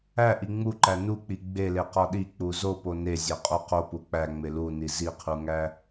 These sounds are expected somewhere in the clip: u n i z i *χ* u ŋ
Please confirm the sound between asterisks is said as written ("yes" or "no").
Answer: no